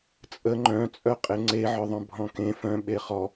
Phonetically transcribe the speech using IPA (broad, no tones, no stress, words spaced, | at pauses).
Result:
t͡sʼə ŋ͡ǃœ̃t͡sʼœ qʼeŋ͡ǀeʕœ ðˤœ̃bʱɔ̃kẽ fœ̃ ɓeχɔ